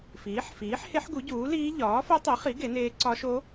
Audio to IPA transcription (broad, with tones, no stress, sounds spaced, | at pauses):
f iː˨˥ ħ f iː˨˥ ħ h e˦˥ ħ ɡ u˨˥ ɟ uː˨˥ l iː˦˥ ʎ ɒː˨˥ f o˦˥ tˤ i˨˥ χ i˨˥ ɡ e˨˥ n eː˦˥ ǀ ɒ˦˥ ʃ o˦˥